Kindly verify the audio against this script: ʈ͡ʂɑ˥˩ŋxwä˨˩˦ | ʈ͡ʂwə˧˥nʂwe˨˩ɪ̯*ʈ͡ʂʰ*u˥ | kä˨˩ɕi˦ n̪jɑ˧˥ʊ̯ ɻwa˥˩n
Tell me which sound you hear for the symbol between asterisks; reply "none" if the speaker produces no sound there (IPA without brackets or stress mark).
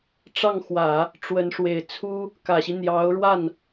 t͡sʰ